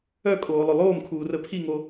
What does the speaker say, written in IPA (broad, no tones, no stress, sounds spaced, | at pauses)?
œ kʼ oː lˠ ɵ lˠ oː m kʰ uː r ə pʰ i ŋ o